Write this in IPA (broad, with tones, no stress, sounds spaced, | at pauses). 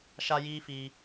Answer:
ʃ a˦ j iː˦ f iː˧